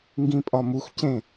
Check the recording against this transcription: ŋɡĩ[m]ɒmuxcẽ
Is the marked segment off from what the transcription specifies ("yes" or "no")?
yes